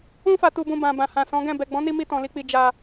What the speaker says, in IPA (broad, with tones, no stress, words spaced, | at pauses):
ũ˧fa˨tu˨bũ˨ bã˨bã˨hã˨ sɔ̃˨˦ɡɛ̃˦˨ bɛ˨ɡ͡bɔ̃˨˦ni˧mi˧ tɔ̃˨li˧k͡pi˧ d͡ʒa˧